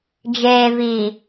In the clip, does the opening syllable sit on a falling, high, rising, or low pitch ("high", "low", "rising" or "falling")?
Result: low